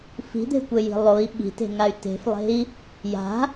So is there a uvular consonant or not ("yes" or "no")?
no